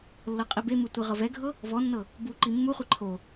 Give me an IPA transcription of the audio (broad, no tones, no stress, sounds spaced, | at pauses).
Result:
lː ɤ qʼ i b e m ɯ tʷ i ʁ ɤ v ɛ ɡʱ ɤ | v ɔ nː ɤ | b u ǃ i mː u χʷ i ǃʰ o